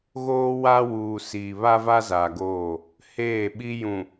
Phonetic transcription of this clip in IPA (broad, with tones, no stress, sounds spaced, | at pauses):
ɣ oː˦ w a˦ w uː˨ s iː˨ β a˦ v a˦ z aː˨ ɡ oː˦˨ | h eː˦˨ ɓ i˦ j ũ˨